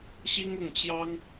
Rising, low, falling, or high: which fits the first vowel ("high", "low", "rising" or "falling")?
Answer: high